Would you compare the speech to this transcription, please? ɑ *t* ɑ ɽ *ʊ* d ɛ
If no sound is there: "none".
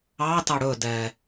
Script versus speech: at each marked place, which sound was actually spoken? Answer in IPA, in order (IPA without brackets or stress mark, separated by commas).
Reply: t, ɵ